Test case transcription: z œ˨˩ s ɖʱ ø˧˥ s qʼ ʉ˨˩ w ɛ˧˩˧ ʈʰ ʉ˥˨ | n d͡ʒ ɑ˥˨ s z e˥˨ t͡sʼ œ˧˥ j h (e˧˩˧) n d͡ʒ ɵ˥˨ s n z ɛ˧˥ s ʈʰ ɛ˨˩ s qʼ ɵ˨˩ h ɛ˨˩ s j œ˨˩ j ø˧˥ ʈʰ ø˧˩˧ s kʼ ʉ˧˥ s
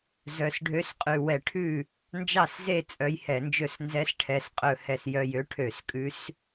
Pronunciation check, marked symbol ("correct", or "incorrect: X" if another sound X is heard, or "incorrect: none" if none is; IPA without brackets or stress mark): incorrect: ɛ˧˩˧